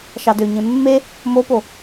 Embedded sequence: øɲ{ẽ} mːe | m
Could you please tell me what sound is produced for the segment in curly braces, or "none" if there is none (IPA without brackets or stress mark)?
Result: ẽ